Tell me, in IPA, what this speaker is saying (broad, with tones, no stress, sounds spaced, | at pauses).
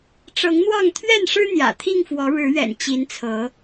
ʈ͡ʂ ɤ˨˦ ŋ n̪ w ɑ˥˨ ŋ t̪ʰ ɥ ɛ˥˨ n ʂ ɻ̩˦ n̪ j ä̰˨˩ t̪ʰ i˥˨ ŋ f w ɔ˨˦ ɻ ɻ̩˨˦ ɥ ɛ̰˨˩ n t͡ɕ i˨˦ n t͡sʰ ɤ˨˦